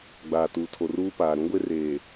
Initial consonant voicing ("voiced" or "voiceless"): voiced